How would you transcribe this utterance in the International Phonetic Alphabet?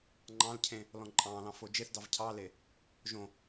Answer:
ŋ͡ǃɑ̃lcʰẽ | lɔ̃ǃʼɑ̃ːlɑ̃ fod͡ʒeθdɑv cʰɑle | ʒõ

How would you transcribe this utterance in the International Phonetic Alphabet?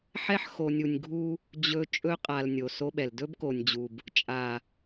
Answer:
ħɛ˦ħxo˨nʲu˨nʲɡʱu˦ | d͡ʑɵ˨ t͡ʃʼɵ˦qʼa˨l nʲo˨so˦ɓɛ˨l dɵ˦bko˨nʲd͡ʑu˨b | t͡ʃʼa˨

